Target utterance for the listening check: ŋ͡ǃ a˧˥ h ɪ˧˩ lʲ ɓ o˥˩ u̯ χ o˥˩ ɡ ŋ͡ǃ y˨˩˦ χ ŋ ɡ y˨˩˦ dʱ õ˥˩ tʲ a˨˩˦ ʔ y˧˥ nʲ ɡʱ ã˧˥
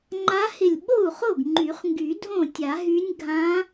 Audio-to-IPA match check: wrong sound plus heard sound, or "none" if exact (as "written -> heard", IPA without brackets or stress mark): ʔ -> ɦ